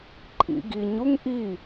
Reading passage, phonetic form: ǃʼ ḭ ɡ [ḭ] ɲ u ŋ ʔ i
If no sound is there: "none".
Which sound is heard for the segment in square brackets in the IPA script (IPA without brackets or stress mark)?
i